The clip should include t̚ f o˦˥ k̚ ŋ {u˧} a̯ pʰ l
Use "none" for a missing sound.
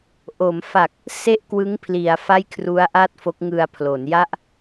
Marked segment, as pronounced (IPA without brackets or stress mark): ɯ˧